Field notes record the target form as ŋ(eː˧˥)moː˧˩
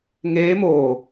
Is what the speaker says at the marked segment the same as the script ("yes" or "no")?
yes